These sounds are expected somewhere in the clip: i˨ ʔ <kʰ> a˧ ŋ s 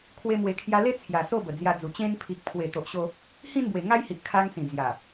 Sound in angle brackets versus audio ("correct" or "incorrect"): correct